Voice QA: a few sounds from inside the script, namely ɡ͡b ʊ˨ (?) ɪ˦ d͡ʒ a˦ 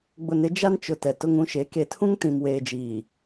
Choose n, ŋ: n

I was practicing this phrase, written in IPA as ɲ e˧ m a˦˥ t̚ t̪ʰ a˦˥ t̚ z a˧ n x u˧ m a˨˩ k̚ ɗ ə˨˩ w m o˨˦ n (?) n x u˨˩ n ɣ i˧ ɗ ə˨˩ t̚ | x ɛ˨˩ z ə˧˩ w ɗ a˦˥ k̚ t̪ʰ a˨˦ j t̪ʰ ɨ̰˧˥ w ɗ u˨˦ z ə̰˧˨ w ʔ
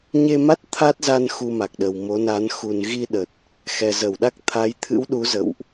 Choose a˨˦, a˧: a˨˦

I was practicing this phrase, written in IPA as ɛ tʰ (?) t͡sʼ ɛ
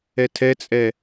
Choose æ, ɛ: ɛ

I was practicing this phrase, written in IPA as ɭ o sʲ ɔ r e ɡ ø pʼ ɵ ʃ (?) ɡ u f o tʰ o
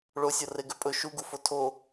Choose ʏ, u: u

